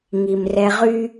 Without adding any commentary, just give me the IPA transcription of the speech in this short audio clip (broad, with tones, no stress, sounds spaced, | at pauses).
ŋ i˨ m r ɛ˧ ʁ y˦